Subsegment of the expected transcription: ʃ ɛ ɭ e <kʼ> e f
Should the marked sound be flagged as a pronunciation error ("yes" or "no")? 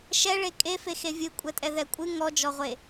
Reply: no